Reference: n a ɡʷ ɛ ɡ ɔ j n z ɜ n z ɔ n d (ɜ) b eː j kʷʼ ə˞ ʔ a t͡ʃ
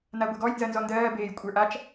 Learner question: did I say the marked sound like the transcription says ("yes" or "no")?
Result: no